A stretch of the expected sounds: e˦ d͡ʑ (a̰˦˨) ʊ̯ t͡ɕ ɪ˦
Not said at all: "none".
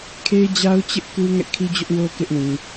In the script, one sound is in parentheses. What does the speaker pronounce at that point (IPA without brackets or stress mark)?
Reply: a˦